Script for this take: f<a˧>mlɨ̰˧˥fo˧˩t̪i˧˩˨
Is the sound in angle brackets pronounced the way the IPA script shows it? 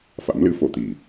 no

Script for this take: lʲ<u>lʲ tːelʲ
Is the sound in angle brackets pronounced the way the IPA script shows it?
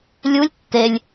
yes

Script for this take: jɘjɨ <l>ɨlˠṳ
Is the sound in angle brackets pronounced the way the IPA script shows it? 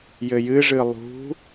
no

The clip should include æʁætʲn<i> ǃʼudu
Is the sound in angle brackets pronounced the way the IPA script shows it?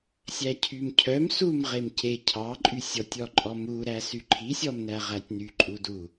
no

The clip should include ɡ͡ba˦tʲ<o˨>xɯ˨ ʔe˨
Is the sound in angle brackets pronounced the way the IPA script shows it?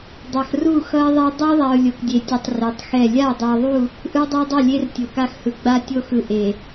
no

